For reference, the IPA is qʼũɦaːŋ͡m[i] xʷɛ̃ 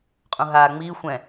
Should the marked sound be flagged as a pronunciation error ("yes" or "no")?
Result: no